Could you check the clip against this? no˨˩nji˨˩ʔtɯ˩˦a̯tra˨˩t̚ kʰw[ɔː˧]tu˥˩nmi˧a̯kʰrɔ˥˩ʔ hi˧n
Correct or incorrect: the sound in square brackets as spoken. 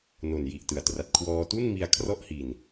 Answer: correct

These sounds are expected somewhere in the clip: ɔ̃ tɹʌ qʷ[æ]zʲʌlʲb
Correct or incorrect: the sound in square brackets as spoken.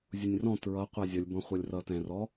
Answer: correct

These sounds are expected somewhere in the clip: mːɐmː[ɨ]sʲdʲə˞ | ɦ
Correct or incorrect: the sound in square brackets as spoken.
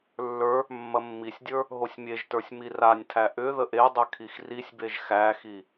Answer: incorrect: i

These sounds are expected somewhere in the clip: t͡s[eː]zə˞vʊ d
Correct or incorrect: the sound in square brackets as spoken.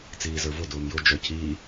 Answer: incorrect: iː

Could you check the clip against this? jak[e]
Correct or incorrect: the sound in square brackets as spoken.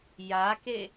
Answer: correct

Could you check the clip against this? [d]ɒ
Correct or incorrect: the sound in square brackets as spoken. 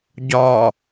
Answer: incorrect: ɟ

